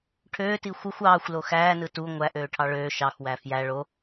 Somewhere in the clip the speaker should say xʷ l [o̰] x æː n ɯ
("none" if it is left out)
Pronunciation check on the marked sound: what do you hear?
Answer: o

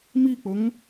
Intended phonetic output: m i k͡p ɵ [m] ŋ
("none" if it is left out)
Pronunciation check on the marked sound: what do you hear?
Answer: none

